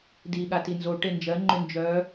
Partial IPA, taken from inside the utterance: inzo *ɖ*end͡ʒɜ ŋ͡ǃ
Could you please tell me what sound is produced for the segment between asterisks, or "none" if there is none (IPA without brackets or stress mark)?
ʈ